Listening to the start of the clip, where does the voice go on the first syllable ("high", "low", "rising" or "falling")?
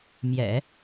low